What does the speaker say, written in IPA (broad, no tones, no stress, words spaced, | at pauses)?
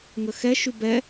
ŋəxɛʃy bɛ